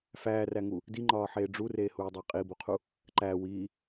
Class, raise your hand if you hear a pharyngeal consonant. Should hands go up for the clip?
yes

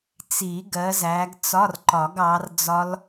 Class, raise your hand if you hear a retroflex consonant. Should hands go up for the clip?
no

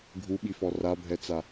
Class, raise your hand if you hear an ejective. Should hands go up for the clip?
no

